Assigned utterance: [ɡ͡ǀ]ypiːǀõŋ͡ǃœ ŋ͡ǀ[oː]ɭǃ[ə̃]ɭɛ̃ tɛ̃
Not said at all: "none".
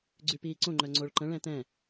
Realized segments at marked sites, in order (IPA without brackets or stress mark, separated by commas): ɡ͡ǀ, o, ə̃